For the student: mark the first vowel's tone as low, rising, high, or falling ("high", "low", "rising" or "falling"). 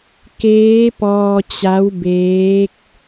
rising